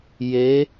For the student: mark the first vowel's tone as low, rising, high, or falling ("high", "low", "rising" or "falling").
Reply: rising